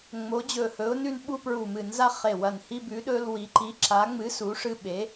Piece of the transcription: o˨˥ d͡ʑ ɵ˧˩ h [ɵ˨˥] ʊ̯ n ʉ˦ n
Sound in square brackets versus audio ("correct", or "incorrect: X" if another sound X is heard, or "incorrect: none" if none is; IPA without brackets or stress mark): correct